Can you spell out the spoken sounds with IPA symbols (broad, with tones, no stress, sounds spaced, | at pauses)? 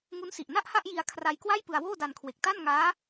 ŋ u˦˥ n s i˨˩ ʔ n a˥˩ ʔ h a˥˩ ʔ j i˧ a̯ kʰ r a˧ j k w a˥˩ j p ɯ˧ a̯ w oː˥˩ d a˧ n kʰ w e˨˩ k̚ t a˥˩ n ŋ aː˦˥